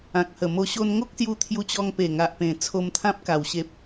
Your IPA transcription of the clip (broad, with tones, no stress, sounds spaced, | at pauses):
ã˨ k̚ h ə˨˩ m o˧ ɕ o˧ n ŋ o˦ k̚ s j u˧ t̪ʰ j u˧ t͡ɕ ɔ˧ ŋ p e˨˩ ŋ a˨ ʔ p ẽ˨˩ t͡sʰ o˧ m t̪ʰ ã˦ p̚ k a˨˩ w ɕ e˨ p̚